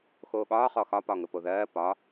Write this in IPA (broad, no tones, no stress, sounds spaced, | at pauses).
x oː ɠ ɒː χ ɔ x ɒ p ɒ ŋ ə p o ð ɜː p ɒ